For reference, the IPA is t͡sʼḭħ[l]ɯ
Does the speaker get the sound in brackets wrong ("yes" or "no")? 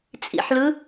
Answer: no